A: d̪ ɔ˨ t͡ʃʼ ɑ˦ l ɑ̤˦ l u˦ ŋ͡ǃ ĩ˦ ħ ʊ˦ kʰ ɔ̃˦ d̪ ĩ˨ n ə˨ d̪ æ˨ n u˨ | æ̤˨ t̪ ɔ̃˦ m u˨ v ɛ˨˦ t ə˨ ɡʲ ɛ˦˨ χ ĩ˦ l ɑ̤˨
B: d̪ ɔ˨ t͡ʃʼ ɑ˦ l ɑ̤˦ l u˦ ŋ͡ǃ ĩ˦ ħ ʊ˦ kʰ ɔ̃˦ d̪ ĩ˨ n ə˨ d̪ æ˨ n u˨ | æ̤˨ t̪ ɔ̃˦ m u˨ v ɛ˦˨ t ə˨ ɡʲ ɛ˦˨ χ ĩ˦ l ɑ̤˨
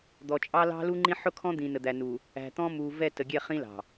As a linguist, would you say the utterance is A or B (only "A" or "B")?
B